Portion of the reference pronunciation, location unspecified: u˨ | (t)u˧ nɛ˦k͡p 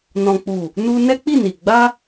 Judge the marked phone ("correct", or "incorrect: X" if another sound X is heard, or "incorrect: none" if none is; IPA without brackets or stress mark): incorrect: n